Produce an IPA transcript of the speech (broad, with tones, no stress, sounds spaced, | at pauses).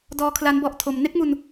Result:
d ɔː˦˥ kʰ l a˦˥ n b ɔ˦˥ ʔ tʰ o˧ m n e˦˥ k̚ m u˧ n